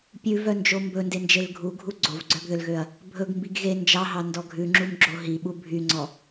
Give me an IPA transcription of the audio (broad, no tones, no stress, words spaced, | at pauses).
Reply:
pʲʉvœnd͡ʒo mbɵndend͡ʒel ɡʱuɡʱu ɡ͡ǀovɡ͡ǀœɡðølɣøɐ̯ | bʱɵɡmbiɡ ɣe nd͡ʒɑɦɑndɔ ɡʱʉŋ͡ǁumɡ͡ǁo ɦiɓu bʱyŋ͡ǀɔ